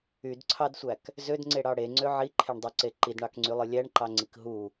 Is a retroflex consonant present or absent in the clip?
present